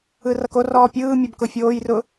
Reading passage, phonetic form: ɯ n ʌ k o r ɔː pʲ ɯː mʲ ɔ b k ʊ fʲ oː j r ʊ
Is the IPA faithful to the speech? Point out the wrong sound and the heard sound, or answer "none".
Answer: n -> r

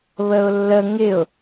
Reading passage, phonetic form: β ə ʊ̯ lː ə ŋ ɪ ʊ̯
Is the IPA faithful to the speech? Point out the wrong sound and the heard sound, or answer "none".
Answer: none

